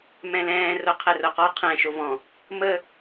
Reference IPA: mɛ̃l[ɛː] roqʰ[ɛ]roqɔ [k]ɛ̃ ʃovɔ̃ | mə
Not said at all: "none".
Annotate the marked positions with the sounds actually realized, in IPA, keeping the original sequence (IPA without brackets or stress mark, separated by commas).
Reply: ɛ̃ː, ɛ, qʰ